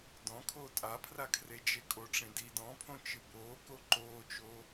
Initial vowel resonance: nasal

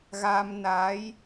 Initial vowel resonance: oral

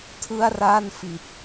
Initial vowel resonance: oral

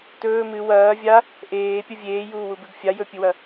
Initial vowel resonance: oral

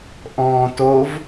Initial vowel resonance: nasal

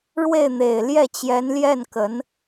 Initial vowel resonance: oral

